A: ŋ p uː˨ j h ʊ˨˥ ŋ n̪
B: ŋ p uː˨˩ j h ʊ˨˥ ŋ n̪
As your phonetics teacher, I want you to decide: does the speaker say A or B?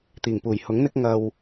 B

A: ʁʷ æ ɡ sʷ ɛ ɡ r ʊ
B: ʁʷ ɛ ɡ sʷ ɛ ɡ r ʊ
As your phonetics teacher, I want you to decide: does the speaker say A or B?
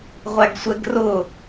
A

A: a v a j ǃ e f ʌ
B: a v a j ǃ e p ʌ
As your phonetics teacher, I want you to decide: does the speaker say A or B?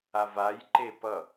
B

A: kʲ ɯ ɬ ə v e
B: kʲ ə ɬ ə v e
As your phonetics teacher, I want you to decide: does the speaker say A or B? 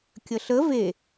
B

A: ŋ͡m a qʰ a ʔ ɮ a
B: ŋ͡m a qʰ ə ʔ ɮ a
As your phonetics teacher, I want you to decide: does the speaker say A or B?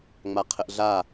B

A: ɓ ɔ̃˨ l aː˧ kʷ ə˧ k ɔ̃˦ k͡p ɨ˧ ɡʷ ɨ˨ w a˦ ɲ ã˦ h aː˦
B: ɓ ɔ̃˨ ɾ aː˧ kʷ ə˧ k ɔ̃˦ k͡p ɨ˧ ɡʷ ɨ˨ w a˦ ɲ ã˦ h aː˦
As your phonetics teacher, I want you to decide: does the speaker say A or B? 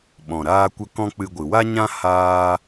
B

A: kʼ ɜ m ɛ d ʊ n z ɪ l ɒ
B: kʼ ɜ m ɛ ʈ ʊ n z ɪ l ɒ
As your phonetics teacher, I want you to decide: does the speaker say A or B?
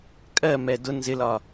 A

